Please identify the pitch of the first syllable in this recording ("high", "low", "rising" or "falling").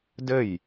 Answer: falling